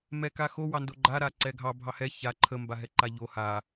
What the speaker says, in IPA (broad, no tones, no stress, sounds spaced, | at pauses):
m ɛ k a x o w ɑ n d o ɡ͡ǃ a ɾ a ǀ ɛ ɡʱ ɑ bʱ ɑ h ɛ ç a ǃʰ ə m b a ɦ ɛ ǃ a ʎ o h a